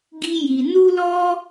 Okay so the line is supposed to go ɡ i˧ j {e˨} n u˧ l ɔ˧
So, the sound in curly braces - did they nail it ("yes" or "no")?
no